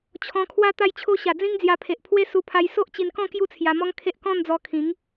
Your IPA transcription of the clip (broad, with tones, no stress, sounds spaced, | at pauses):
t͡ɕʰ ɔ̃˧ kʰ w a˦ t̪ a˧ j t͡ɕʰ o˧ ɕ a˨˩ d͡z ĩ˦ ŋ d͡z j a˧ pʰ e˨ ʔ pʰ w e˦ s u˧ pʰ a˧ j s o˦ ʔ t͡ɕ i˧ n k ɔ̃˥˧ k j u˦ t͡sʰ j a˧ m ɔ˦ ŋ kʰ e˦ ʔ k ɔ̃˥˧ n d͡z ɔ˧ kʰ ĩ˨˦ ŋ